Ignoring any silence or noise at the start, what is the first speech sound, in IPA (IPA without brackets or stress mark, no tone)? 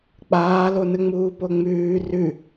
k͡p